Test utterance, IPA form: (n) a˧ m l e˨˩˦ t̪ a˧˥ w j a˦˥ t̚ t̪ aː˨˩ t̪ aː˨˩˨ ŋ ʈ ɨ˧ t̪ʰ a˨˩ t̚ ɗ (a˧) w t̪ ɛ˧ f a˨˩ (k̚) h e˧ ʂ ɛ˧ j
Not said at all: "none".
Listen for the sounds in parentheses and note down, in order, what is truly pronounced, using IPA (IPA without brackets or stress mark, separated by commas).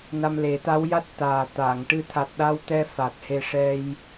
n, a˧, t̚